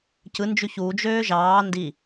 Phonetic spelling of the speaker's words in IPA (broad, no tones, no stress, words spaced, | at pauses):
cɯnd͡ʒy çud͡ʒøː ʒɑː ndi